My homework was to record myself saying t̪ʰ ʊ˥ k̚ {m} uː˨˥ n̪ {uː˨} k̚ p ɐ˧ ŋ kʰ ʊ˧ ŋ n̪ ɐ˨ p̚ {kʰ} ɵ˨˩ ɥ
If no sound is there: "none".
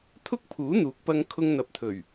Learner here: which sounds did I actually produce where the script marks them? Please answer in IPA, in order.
pʰ, uː˨˥, t̪ʰ

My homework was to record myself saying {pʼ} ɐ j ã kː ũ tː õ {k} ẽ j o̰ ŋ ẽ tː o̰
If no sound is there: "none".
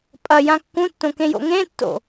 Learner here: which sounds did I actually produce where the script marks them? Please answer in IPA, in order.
pʼ, k

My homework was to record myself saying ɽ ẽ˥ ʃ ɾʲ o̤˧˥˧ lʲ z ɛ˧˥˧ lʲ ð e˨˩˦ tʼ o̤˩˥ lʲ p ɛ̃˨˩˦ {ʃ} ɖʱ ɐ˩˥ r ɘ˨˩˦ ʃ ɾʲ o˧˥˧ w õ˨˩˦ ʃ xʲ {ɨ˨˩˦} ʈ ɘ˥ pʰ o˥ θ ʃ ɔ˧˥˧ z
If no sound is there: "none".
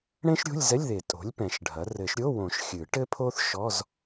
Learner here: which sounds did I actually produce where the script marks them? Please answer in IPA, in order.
ʃ, ɨ˨˩˦

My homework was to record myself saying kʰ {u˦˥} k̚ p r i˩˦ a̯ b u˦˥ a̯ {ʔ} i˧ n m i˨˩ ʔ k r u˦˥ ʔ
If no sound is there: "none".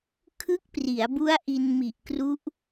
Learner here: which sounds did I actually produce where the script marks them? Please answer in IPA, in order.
ɯ˦˥, ʔ

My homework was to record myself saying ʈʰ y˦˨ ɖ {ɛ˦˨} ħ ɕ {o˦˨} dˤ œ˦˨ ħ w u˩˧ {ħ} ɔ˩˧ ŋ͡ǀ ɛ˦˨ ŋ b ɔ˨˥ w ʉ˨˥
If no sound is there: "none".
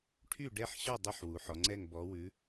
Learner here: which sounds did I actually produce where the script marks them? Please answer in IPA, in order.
ɛ˦˨, ɔ˦˨, ħ

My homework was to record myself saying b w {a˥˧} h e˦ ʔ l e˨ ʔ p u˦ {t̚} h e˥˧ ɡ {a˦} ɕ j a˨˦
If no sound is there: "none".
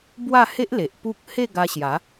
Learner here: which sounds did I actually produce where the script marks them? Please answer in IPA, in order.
a˥˧, k̚, a˧

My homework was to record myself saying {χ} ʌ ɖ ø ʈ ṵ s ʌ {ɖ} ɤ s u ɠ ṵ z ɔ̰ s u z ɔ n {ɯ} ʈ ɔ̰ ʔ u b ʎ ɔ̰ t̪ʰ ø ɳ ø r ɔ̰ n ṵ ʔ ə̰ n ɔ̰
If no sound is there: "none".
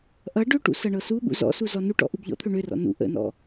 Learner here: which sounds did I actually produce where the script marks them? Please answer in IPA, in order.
ʔ, ɳ, u

